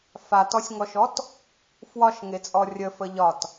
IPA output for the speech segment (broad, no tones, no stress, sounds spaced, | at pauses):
f a t ɔ sʲ ŋ ɔ ʃ ɔ t | f w ɒ ʃ ŋ e t͡sʼ ɔ rʲ ə f ə ʎ ɒ t